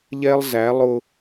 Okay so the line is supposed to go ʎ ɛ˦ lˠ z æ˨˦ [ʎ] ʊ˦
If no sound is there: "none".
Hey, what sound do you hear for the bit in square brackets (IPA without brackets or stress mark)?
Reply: lˠ